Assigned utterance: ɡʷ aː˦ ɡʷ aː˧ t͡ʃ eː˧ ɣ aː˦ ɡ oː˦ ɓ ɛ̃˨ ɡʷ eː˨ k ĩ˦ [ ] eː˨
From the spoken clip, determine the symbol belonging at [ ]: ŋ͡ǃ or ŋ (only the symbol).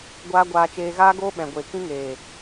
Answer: ŋ